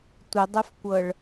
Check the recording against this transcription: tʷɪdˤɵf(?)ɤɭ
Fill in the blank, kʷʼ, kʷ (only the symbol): kʷ